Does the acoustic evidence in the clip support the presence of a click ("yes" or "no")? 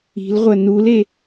no